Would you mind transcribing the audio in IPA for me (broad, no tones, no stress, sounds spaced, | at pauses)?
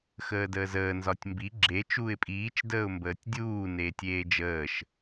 x əː d əː z əː n z ɒ tʲ m b i ɡ͡ǁ e t͡ʃ uː ɪ̯ pʼ iː t͡ʃ d əː ʊ̯ m b əː tʲ dʲ uː n eː tʲ eː d͡ʒ əː ʃ